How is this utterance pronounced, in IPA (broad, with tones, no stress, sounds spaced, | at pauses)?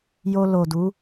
j o˧ l o˨ d u˨˦